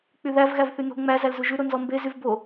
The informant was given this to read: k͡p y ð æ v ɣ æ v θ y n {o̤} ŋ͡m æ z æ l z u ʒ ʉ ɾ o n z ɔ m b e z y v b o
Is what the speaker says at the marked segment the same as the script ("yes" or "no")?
yes